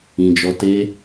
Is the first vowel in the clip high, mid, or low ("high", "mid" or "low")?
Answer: high